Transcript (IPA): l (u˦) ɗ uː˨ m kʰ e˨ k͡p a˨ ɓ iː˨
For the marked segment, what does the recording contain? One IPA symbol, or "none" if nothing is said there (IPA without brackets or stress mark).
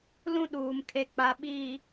ũ˦